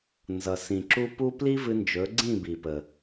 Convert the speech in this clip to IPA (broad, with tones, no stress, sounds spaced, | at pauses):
n z ʌ˩ s ĩ˩ ǁ u˥ p u˥ p l i˥ v ɨ˧ n d͡ʒ ɵ˩˥ ɡ͡ǀ ĩ˥˩ b i˩ p ə˩